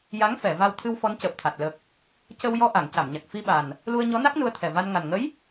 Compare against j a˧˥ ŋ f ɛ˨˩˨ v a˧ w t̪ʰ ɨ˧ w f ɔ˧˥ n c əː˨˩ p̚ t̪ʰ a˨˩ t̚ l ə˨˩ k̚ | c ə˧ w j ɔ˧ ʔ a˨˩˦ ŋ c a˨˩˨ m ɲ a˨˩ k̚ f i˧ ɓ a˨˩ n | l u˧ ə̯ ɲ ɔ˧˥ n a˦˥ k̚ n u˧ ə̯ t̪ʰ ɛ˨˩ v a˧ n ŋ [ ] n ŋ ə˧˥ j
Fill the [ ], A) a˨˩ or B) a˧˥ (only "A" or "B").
A